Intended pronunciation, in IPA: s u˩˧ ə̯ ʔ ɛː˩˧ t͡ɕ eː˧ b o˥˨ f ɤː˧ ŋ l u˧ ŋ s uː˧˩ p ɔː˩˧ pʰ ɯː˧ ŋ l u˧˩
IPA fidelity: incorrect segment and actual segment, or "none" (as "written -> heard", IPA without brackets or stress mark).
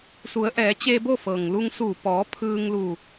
ɤː˧ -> ɤː˩